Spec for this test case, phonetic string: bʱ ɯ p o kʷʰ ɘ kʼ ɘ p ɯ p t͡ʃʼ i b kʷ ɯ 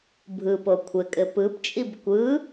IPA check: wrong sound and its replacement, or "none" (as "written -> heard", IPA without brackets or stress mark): none